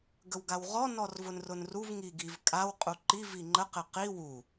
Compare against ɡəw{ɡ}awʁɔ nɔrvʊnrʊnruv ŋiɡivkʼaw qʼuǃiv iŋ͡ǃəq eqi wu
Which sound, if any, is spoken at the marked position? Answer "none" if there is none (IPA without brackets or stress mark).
ɡ